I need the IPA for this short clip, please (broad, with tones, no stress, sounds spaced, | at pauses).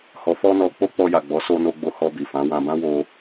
h ɔ˨ f ɔ˧ n ɔ˨ k͡p o˧ k͡p ɔ˧ j a˨ ɡ͡b ɔ˨˦ s o˧ n o˧ ɡ͡b o˧ h ɔ˧ b i˨ f ã˨˦ w ã˧ b ã˦ w o˧